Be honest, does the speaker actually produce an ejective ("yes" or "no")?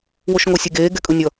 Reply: yes